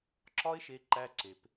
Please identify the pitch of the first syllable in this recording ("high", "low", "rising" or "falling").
high